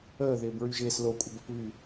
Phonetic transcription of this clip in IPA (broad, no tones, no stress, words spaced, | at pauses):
əːðɪːb ɹyʒɪːs lokʷʼɪb əpβy